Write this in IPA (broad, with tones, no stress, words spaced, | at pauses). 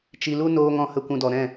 t͡ʃi˧lu˦ noː˧ ŋɔ̃˨hə˨ kʷũ˧dɔ˨ɾɛ̃˦˨